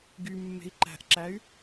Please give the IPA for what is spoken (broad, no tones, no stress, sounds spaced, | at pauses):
ɡ y mː e̤ i̯ ǃ æ̤ ʔ ǁ æ y̯